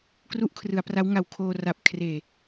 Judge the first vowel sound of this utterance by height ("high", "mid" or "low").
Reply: high